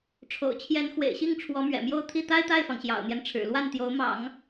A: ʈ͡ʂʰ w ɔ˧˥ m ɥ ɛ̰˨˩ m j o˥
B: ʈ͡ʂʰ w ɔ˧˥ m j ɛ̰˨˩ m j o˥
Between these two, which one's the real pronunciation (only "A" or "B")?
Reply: A